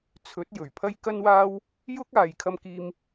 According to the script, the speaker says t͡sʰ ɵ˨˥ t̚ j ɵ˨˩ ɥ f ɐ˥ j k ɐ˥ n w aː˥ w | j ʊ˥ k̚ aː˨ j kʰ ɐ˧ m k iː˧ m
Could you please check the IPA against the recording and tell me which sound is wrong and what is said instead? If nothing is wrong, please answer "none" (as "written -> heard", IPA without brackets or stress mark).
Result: f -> pʰ